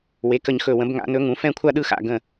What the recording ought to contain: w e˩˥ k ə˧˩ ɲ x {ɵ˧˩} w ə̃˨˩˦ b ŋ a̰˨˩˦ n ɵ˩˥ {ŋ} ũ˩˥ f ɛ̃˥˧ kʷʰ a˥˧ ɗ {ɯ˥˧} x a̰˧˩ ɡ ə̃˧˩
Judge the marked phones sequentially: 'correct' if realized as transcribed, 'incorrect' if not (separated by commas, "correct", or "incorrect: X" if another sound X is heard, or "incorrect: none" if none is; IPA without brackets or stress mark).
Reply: correct, correct, correct